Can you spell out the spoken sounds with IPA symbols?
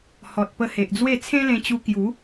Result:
h ɔ˨ t̚ p ə˧ h e˨ ʔ d͡z w e˥˧ t͡sʰ ẽ˦ l ẽ˧ t͡ɕ u˧ k j u˨˦

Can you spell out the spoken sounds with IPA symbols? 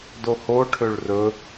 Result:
d o h o ʈʰ ø ɭ r ɵ

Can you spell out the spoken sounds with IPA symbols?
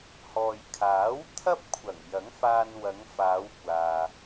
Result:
h ɔː˨ j kʰ aː˨˥ w t̪ʰ ɐ˥ p̚ kʷʰ ɐ˨˩ ŋ j ɐ˨˥ ŋ f aː˧ n w ɐ˨˧ ŋ f aː˨˧ w kʷ aː˨

